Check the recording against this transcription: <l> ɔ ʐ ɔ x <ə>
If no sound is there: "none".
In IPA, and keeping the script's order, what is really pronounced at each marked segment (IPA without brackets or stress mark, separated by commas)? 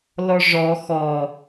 l, ɔ